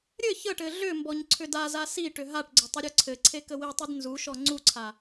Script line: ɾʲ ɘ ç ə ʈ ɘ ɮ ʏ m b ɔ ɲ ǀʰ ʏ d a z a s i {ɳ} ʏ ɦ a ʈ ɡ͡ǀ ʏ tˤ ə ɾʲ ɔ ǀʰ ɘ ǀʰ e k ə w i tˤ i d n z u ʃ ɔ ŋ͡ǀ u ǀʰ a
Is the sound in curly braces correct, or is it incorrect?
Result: incorrect